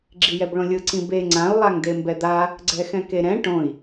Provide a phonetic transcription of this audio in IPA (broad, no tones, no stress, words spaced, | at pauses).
ɡ͡ǁijɛbɭõlʲɯ ǀĩbe ŋ͡ǀãu̯ lˠaŋdembɛd̪a | ɡ͡ǀɛxɛ̃keɾɛ̃ ʈõi̯